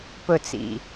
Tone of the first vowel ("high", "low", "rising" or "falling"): falling